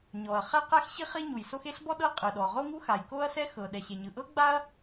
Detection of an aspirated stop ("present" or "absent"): absent